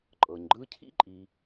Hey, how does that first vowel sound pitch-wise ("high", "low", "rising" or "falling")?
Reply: low